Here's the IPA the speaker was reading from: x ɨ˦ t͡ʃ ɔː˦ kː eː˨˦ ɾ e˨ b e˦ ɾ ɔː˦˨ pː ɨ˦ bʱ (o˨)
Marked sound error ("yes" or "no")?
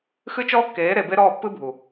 yes